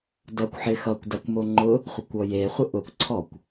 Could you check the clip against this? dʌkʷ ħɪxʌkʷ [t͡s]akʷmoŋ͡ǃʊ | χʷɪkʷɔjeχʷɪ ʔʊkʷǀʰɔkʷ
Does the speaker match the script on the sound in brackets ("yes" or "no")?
no